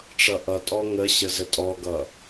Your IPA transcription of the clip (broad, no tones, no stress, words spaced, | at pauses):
ʈ͡ʂʌʔʌtʼɔ ŋə ɕəzətʼɔɡʌ